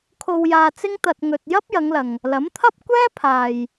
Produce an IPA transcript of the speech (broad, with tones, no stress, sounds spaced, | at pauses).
kʰ o˧ w j aː˧ t͡s ɪ˥ ŋ t̪ ɐ˧ t̚ ŋ ɵ˧ t̚ j ɐ˥ p̚ j ɐ˨˧ ŋ l ɐ˨ ŋ | l ɐ˨˥ m t̪ʰ ɐ˥ p̚ kʷ ɛː˥ pʰ aː˨ j